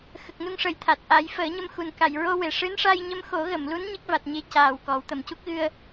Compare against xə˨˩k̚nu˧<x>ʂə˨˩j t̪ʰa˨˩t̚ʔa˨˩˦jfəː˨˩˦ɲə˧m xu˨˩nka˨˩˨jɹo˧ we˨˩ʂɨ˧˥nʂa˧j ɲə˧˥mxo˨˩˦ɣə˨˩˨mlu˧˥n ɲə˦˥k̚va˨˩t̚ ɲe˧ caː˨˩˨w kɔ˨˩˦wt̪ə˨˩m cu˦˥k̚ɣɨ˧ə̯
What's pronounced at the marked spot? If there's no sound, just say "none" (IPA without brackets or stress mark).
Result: ŋ